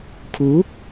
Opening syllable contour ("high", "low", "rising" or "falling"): rising